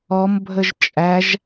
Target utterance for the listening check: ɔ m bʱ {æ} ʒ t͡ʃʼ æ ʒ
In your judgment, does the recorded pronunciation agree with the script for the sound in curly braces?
no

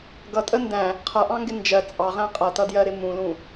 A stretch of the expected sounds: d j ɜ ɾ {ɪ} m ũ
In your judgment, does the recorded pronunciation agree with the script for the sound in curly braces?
yes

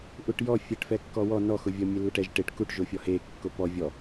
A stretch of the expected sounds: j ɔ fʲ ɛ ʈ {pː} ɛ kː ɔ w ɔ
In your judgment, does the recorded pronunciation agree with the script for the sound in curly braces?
no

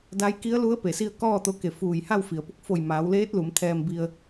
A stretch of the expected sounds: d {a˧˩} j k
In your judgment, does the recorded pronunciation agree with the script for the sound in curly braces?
no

